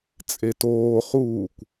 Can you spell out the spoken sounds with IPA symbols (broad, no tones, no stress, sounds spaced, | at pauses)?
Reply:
t͡sʼ e t oː χ uː kʷ